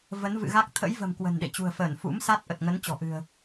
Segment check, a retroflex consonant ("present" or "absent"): absent